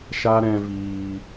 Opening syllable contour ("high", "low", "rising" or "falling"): high